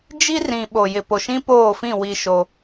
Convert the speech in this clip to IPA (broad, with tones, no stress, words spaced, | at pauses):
d͡ʒi˦rĩ˨ ɓo˨jɪ˨ po˨ʃĩ˦poː˦˨fĩ˦˨ wi˦ʃo˦